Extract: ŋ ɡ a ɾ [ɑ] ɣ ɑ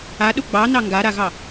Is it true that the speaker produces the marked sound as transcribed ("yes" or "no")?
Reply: no